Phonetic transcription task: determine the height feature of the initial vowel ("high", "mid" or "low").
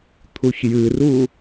high